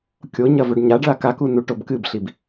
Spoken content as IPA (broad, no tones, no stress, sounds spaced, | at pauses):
kʲ o ɲ ɐ v ɵ ɖ ɲ a ɖ ɭ a k a k u n u ʈ o b k ɨ b ɬ i b